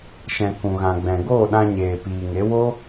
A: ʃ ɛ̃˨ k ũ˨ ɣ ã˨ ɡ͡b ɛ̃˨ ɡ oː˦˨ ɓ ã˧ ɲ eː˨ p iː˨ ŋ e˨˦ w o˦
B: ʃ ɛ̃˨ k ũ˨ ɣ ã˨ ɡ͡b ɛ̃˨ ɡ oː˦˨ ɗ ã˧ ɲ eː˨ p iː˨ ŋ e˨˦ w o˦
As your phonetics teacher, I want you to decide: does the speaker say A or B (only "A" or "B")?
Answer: B